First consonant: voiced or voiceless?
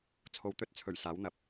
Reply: voiceless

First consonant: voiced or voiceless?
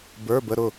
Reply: voiced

